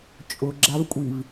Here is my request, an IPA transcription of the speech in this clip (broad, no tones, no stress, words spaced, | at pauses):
t͡ʃʼʊɡ͡ǁavkʷʼiv